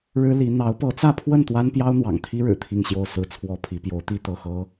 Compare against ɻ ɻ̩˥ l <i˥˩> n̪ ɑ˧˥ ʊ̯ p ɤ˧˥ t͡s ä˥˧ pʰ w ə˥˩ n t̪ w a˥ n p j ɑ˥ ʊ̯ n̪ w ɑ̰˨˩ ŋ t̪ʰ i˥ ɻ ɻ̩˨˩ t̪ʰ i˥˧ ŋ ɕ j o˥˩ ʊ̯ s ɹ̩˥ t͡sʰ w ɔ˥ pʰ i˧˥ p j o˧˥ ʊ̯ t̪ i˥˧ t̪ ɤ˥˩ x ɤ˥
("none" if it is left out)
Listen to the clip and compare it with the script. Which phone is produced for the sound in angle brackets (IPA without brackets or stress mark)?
i˧˥